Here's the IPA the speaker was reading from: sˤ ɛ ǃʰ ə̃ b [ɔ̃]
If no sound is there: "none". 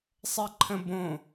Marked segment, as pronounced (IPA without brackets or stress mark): õ